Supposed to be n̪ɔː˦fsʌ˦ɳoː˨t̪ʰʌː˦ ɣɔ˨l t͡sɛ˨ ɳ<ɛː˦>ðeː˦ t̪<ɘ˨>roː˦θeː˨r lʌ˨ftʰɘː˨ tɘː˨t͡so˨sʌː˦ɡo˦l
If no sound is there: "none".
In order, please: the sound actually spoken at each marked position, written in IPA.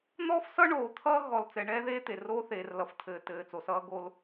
ɛː˦, e˨

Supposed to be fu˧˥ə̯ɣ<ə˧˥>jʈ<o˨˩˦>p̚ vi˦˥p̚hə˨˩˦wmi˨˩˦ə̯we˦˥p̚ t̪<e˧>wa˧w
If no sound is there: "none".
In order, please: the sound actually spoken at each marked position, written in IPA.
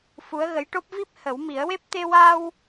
ə˧˥, o˦˥, e˧

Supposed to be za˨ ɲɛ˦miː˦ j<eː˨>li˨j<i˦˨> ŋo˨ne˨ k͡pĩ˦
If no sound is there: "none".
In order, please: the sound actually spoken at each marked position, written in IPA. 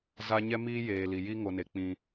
eː˨, i˦

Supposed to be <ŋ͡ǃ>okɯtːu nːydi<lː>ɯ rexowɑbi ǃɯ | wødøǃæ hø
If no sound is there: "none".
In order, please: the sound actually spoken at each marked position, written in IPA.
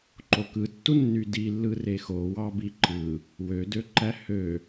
ǃ, lː

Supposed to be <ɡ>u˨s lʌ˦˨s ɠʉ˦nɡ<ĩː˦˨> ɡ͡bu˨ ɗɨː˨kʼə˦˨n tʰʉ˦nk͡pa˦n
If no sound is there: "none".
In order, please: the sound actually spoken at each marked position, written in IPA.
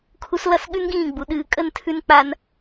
kʰ, ĩː˦˨

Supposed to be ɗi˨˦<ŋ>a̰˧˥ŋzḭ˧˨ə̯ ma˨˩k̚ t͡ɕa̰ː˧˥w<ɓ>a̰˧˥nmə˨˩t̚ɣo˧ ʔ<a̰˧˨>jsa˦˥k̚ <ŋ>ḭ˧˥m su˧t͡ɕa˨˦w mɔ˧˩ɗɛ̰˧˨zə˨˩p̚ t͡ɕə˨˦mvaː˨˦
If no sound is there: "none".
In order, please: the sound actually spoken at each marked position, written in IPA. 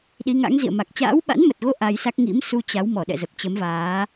ŋ, ɓ, a˧, ŋ

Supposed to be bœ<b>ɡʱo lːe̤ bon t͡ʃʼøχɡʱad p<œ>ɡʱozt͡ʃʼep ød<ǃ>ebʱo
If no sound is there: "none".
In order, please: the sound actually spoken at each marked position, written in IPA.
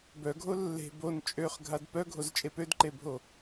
none, œ, ǃ

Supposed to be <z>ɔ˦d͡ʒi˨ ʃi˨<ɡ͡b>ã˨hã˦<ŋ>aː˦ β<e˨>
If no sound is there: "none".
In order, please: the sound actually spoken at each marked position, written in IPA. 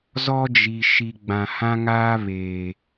z, ɡ͡b, ŋ, eː˨

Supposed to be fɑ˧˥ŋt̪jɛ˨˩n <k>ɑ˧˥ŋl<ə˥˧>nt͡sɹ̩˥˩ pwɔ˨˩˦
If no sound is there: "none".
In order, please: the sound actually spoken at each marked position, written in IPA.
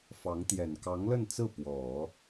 k, ə˥˧

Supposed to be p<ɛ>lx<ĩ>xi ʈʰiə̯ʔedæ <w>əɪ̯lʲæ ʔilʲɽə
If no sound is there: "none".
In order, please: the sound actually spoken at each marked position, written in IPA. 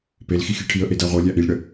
e, i, ʁʷ

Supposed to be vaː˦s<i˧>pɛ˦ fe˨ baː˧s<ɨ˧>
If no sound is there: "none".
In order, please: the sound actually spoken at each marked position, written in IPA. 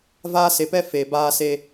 e˧, e˧

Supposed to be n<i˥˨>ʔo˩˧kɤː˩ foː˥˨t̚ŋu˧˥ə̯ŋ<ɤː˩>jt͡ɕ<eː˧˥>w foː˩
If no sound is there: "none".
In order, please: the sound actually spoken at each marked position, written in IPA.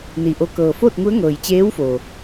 i˩, ɤː˩, eː˧˥

